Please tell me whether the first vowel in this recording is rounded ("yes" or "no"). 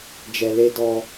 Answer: no